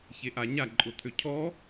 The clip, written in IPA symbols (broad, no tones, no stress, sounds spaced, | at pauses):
ç e ʔ a ɲ a ǃʼ ʊ t̪ʰ ø cʰ ɔ